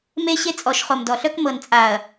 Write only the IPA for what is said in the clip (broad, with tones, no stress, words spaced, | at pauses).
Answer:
me˦ɕe˦ t͡sʼɔ˨˦ʃχo˨m dɔ˨ɬœ˦k mɤ˨nt͡sʼa˨ɐ̯